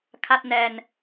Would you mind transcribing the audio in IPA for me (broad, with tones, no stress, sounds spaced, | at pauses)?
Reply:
kʰ a˥˩ t̚ n ɛː˧ n